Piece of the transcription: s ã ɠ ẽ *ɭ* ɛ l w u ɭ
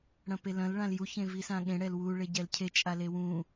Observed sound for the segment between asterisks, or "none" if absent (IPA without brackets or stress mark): ɽ